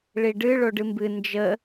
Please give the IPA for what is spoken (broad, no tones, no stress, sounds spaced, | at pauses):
ɭ i ɖ ɨ ɭ o ɖ ɨ m b ɨ n d͡ʒ ə